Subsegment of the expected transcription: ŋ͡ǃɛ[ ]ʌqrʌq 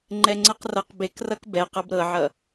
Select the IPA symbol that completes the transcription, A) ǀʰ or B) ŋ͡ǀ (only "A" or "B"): B